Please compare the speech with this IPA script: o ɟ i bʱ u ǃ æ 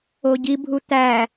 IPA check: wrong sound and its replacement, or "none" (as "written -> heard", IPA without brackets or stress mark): ǃ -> t̪